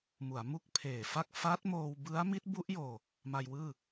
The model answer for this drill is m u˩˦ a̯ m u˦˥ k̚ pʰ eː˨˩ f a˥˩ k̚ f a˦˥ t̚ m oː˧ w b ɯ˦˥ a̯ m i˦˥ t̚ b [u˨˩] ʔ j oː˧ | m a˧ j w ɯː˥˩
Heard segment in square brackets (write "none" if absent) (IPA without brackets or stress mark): u˦˥